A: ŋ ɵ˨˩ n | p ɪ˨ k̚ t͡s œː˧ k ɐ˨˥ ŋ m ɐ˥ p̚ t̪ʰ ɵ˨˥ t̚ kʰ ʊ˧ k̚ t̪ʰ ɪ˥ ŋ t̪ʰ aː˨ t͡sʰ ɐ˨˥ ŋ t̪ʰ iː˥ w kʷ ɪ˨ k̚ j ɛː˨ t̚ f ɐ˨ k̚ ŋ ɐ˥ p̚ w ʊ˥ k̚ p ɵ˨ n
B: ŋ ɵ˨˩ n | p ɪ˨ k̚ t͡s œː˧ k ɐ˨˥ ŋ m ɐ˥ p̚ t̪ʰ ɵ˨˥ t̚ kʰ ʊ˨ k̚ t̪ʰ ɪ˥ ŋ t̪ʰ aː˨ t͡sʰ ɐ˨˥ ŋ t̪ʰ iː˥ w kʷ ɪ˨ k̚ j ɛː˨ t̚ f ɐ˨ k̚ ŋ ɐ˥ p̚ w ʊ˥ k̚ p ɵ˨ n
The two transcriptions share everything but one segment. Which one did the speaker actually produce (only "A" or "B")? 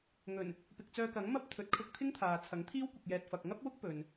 A